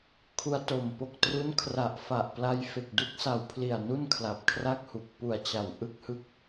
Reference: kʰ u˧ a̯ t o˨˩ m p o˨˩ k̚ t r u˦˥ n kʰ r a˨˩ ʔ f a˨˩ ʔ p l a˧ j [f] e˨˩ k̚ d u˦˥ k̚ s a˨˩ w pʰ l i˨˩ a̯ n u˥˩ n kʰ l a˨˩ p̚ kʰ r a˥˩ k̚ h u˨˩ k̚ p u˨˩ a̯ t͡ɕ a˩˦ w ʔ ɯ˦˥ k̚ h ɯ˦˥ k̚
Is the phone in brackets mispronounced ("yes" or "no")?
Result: no